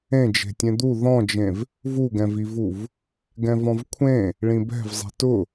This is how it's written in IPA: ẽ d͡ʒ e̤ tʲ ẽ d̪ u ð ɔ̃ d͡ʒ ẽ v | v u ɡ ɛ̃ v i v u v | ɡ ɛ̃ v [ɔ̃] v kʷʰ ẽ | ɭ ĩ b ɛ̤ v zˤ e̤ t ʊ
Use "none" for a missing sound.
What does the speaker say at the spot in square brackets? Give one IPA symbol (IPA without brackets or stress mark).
ɔ̃